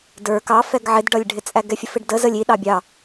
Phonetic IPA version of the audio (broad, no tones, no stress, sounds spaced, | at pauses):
d ə˞ k ɑ f ɛ ɡ ʕ ɪ d ɖ ʌ lʲ ɖʱ ɪ t͡sʼ æ ɡ ɛ fʲ ə f ɪ ɖ d ə z ə lʲ i ɗ ɑ bʲ ɑ